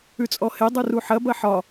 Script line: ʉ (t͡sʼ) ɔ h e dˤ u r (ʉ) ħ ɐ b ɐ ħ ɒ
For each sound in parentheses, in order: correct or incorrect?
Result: correct, incorrect

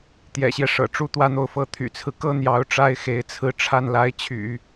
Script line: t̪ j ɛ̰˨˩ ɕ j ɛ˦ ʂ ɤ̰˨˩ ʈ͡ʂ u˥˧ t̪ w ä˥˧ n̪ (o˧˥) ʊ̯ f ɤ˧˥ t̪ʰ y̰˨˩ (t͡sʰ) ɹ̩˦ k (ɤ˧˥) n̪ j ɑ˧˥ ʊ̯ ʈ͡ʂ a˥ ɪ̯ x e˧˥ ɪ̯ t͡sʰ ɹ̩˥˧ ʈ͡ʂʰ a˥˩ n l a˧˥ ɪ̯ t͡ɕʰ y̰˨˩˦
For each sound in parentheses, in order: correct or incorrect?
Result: incorrect, correct, incorrect

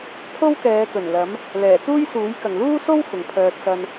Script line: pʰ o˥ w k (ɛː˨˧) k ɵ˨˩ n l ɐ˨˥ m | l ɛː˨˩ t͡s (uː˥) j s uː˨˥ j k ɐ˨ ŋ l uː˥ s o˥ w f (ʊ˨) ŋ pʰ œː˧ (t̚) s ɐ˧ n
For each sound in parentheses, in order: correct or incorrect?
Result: correct, correct, correct, correct

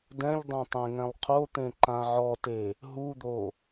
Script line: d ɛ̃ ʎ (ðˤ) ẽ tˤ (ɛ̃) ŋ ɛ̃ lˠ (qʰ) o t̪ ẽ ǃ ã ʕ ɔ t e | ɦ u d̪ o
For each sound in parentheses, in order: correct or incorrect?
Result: incorrect, incorrect, correct

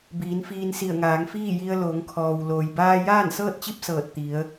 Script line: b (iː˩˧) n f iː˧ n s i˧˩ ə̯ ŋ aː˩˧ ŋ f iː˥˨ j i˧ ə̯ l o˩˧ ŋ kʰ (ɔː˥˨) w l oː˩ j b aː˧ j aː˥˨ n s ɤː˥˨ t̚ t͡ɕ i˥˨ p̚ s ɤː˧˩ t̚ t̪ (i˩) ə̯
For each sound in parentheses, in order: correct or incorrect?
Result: correct, incorrect, incorrect

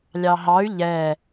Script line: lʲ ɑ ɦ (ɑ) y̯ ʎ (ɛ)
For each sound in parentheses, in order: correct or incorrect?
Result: correct, correct

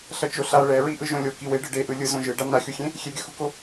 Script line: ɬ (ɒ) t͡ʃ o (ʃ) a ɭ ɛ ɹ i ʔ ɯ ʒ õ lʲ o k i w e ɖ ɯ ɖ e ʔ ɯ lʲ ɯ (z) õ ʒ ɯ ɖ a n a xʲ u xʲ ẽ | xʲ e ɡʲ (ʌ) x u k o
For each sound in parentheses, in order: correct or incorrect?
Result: incorrect, incorrect, correct, correct

